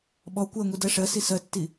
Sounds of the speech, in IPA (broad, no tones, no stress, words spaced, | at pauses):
ɓɔ kʷɜŋʷi dɜʂɜsi sɜtːi